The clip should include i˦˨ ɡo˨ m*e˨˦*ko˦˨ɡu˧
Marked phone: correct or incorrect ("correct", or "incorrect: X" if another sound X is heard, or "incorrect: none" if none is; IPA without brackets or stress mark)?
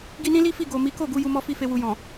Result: incorrect: i˨˦